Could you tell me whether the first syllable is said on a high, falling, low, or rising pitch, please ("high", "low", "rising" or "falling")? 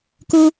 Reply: high